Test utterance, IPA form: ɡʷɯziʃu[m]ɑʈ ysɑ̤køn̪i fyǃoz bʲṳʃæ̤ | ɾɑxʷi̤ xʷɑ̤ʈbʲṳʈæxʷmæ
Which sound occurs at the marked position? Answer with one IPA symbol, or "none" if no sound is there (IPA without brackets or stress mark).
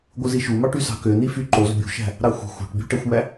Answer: m